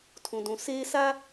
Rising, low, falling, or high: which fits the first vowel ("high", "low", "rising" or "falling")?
low